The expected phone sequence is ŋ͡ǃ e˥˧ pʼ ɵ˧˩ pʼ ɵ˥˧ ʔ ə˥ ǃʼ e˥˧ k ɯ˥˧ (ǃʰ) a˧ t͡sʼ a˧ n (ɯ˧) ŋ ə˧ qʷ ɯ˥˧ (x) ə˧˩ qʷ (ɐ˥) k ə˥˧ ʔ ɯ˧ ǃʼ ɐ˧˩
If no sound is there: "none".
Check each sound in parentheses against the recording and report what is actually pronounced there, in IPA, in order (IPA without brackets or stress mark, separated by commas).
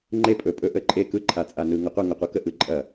ǃʰ, ɯ˧, ŋ, ɐ˥